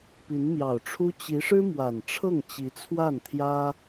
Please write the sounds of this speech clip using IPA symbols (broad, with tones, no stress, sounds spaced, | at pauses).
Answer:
p i˧˥ n m j ɑ˨˩ ʊ̯ ʈ͡ʂʰ u˥ t͡ɕ i˧˥ ʂ ɻ̩˥ m w a˨˩ n ʈ͡ʂʰ ɤ˥˩ ŋ t͡ɕ i˧˥ t͡sʰ w a˥˩ n t̪ʰ j ä˥